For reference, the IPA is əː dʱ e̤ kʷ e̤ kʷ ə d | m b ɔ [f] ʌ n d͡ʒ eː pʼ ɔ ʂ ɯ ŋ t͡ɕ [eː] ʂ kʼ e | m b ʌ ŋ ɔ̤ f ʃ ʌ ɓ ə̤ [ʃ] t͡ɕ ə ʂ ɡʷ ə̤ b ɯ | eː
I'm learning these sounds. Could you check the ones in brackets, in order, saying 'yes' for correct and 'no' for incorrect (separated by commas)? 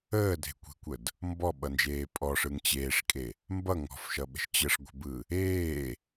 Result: no, yes, yes